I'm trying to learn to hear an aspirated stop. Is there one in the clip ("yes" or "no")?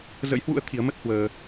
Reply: yes